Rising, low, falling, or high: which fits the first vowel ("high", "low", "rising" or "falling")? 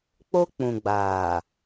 high